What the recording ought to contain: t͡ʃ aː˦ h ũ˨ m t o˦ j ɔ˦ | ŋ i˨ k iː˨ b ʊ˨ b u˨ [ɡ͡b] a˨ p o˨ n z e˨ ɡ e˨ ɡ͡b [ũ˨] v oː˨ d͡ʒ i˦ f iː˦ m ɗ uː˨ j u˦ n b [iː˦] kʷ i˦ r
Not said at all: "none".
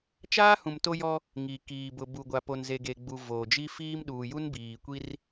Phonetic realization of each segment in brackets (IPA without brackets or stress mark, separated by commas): ɡʷ, u˨, iː˨